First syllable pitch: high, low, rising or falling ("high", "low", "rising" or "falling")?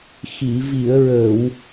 low